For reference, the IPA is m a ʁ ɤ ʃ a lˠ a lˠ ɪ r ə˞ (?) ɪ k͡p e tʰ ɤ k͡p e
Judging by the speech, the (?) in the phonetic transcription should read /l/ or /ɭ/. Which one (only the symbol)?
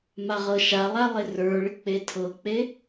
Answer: ɭ